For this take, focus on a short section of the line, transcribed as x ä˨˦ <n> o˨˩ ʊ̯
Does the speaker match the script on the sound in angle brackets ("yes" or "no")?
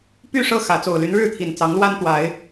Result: no